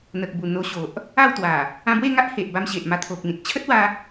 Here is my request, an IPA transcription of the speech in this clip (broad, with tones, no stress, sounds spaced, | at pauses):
n̪ ə˨ k̚ b u˨˩ n̪ o˧ ɕ o˨ ʔ | a˥˧ w t̪ w a˨˩ | ã˧ b w e˥˧ ŋ a˦ ʔ h e˨ ʔ b a˧ m ɕ e˨ ʔ m a˧ t̪ʰ o˨ k̚ n̪ ĩ˨ t̚ t͡ɕʰ ə˦ t̚ w a˧